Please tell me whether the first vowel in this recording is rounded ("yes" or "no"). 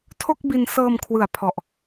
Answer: yes